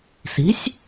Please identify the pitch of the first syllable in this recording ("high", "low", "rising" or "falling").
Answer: rising